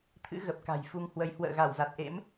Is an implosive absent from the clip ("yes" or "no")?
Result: yes